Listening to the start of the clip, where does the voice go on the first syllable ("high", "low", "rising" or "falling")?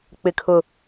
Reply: low